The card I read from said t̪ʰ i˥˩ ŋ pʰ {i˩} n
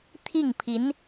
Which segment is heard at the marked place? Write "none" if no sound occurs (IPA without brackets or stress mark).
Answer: i˧˥